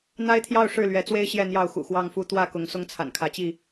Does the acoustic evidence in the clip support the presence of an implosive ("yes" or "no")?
no